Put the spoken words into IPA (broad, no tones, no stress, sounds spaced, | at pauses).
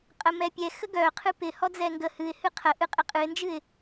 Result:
qʼ ə m ɛ pʲ ɛ x ə ɡ œ qʰ ɨ p ɪ h ɔ d͡z ɛ ŋ ɡ ə h ɨ ɪ̯ h ɨ qʰ ə ʔ ɨ qʼ ɪ qʼ ɨ ɪ̯ n d͡ʒ ɨ ɪ̯